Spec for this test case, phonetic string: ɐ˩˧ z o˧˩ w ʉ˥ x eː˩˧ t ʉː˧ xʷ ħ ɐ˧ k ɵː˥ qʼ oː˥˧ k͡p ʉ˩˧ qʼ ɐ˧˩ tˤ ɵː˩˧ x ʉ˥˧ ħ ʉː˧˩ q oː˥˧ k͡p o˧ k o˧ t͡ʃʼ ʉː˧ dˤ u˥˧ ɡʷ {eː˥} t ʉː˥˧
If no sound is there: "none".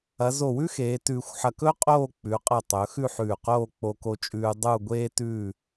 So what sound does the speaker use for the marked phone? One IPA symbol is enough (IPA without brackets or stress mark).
eː˥